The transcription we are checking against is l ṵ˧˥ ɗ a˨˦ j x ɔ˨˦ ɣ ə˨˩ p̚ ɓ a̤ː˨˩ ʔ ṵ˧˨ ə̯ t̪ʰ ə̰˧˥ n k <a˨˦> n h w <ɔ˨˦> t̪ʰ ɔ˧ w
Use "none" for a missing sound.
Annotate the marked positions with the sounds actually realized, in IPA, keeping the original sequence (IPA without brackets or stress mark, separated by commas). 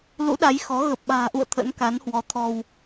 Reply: a˨˦, ɔ˨˦